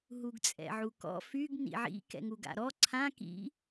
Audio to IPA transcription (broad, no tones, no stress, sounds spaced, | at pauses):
ɦ u ɡ t͡sʼ ɛ̰ ʕ u k ɔ̰ f y ɡ n ḭ ʕ ḭ k ɛ̰ ŋ u ɡ a̰ ɾ ɔ ǀʰ ã k ḭ